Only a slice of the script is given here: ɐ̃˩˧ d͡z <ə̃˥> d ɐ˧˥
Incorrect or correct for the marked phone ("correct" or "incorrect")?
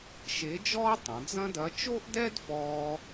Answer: incorrect